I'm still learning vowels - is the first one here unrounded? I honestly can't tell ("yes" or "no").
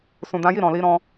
no